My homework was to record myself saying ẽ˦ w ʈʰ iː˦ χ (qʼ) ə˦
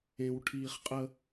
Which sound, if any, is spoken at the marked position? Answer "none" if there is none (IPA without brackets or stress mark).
qʼ